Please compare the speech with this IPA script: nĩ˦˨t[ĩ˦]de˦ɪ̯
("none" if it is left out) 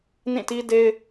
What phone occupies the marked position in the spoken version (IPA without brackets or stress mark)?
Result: i˦